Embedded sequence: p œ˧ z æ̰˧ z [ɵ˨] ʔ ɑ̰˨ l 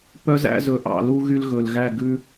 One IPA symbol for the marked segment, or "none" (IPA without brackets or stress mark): ɵ˨